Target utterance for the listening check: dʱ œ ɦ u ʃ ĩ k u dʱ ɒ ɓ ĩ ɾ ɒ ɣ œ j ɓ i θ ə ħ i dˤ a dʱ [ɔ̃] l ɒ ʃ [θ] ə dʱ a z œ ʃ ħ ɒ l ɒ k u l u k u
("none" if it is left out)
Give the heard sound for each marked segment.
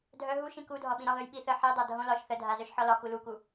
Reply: õ, θ

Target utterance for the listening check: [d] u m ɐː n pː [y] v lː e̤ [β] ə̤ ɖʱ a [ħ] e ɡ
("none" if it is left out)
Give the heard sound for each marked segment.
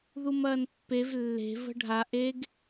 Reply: ð, e, v, ʔ

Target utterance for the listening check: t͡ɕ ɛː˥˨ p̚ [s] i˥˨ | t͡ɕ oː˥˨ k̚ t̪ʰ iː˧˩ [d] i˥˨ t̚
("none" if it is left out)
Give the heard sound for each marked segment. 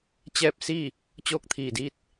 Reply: s, d

